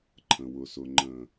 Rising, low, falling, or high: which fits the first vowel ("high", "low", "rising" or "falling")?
low